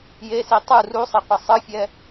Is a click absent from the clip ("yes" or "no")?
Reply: yes